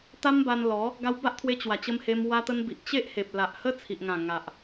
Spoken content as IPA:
t̪ a˦ m b a˧ n l ɔ˨˦ | ɡ a˧ w b a˦ ʔ t̪ʰ w e˧ t͡ɕ w a˨˩ t͡ɕ ə˧ m h e˧ m w a˧ t̪ ə˧ n b i˨ ʔ t͡ɕ e˦ ʔ h e˨ p̚ l a˨ ʔ h ə˦ t͡sʰ i˨ ʔ ŋ ã˨˩ ŋ a˨ ʔ

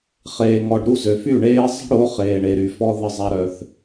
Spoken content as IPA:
χ eː˨ ŋ ɔ˨ ɖ ɾ u˦˨ z ø˨ f y˦˨ ɳ eː˦ zˤ ə̤˦ ɽ o˨˦ χ eː˨ ɳ e˨ ɾ y˨ f ɔ˦ ð ə˦˨ zˤ a˦ ɾ œ˦ θ

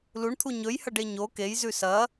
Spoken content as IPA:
l u ɳ t̪ʰ u ɲ ɵ j h ɐ ɖ e ɲ o k e j z ʉ s ɐ

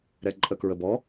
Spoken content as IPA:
ɾ ɛ ǃʼ ə k ɹ ə b ɔ

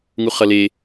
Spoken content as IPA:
ŋ u χ ʌ l e

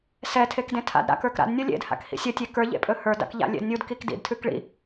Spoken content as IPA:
s ɛ tʰ e k d ẽ tʰ a̰ d ɾ a̰ k ə˞ k ɾ a̰ d nʲ ə˞ lʲ ḛ d h a̰ k h ḭ sʲ ə tʲ e k ə˞ ʎ ḛ pʼ ɵ h ə˞ d a̰ k ʎ a̰ lʲ ḛ d nʲ u d k i k d ḭ d tʰ ʉ k ɭ ḭ

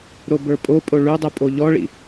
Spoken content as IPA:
ɾ o b ə˞ pʼ o pʼ o ɭ ʉ dˤ u pʼ o ʎ ɔ ɭ ḭ

